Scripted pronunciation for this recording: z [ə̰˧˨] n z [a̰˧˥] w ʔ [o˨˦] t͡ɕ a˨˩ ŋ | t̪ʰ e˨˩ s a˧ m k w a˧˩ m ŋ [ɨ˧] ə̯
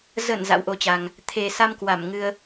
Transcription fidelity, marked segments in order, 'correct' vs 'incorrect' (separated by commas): incorrect, correct, correct, correct